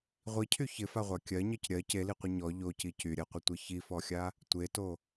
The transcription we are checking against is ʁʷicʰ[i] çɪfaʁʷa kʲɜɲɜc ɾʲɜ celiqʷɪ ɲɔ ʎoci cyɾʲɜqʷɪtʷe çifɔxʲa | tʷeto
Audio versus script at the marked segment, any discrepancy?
yes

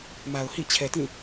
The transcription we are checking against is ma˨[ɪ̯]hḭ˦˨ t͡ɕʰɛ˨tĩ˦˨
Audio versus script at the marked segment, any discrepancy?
yes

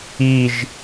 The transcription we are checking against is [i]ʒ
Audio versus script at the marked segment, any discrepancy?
no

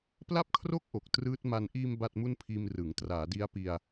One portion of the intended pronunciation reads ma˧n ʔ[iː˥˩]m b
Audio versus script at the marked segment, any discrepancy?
yes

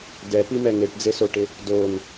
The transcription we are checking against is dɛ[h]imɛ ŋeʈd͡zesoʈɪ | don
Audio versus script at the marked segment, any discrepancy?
yes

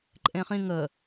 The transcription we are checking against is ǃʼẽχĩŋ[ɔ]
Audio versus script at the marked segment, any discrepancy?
yes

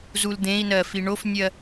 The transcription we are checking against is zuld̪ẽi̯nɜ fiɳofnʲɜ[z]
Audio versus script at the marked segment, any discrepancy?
yes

